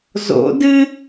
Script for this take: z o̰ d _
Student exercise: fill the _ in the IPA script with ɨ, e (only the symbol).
ɨ